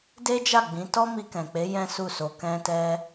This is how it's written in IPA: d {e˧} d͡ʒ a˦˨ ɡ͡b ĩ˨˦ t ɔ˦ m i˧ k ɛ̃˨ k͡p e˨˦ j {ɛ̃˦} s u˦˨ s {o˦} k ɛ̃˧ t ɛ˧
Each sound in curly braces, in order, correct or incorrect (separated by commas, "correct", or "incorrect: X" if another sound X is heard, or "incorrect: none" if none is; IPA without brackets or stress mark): incorrect: e˦, correct, incorrect: o˧